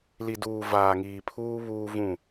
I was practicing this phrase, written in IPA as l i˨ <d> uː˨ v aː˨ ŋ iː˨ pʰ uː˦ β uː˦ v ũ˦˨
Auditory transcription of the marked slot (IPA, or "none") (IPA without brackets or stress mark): d